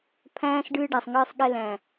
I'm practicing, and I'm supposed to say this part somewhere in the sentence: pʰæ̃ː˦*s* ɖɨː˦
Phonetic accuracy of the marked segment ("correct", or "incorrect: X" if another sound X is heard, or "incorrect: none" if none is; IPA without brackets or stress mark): correct